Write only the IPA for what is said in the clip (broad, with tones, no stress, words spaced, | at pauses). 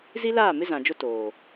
zi˦laː˦˨mɪ˦ zã˨d͡ʒʊ˦ toː˨